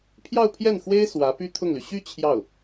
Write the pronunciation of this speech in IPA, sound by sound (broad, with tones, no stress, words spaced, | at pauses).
pʰjɑ˥˧ʊ̯pʰjɛ˥˩nxwe˥ɪ̯ swä˧˥py˥t̪ʰʊ˥˩ŋly˩ ɕy˥˧ t͡ɕʰjɑ˥˩ʊ̯